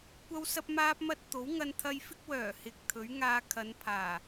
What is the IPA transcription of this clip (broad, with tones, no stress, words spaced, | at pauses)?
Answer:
kʷɐ˥wsɐ˥p̚maː˥p̚mɐ˥t̚ t̪o˨˥wŋɐ˧nt̪ʰɐ˧jfɪ˥k̚ wœː˨˩hɪ˨k̚t̪ʰɵ˨˥ɥ ŋaː˧kʰɐ˨˧npʰaː˨˩